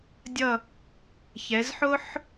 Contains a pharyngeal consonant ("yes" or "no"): yes